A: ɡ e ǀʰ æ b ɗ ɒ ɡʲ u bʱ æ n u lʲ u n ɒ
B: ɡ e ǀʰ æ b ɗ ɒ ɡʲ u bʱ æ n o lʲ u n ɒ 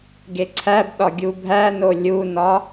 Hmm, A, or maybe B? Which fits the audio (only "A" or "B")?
B